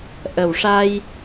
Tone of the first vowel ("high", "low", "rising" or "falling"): low